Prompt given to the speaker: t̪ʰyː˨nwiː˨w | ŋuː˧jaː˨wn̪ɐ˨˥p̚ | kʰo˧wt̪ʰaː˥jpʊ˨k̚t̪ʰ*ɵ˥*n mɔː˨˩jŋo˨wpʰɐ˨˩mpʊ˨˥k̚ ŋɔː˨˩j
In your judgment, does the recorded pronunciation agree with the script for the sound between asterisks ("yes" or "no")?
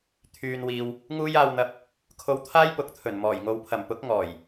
no